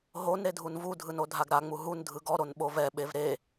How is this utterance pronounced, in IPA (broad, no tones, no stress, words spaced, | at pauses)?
ɦon ɾedʱunvudʱɯn odʱaɡɾaŋ͡mu ɦun dʱɯɡɔɾon ɓovɛɓev ɾe